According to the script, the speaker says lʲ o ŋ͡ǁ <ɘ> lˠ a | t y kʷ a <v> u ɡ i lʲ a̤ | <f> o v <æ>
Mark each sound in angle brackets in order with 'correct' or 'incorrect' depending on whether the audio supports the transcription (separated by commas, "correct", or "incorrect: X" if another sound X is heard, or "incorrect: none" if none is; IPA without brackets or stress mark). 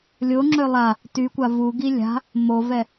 incorrect: ø, correct, incorrect: m, incorrect: ɛ